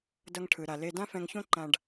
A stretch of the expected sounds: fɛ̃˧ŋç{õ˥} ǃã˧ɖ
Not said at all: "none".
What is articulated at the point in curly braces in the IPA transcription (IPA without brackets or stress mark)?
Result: õ˥